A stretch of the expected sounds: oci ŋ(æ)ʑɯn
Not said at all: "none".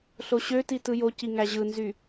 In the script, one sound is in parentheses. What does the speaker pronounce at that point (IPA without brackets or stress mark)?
æ